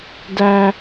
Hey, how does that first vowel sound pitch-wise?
high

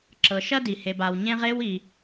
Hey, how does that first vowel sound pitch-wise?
low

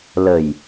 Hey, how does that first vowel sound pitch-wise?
low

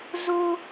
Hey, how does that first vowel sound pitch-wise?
high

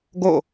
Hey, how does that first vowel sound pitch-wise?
falling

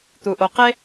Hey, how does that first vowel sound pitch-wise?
low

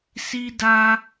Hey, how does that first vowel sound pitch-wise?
high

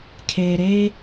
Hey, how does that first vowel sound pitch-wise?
low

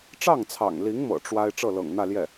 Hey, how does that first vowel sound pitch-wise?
falling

